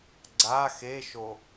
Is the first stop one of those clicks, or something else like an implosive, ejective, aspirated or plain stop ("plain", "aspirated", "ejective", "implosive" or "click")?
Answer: click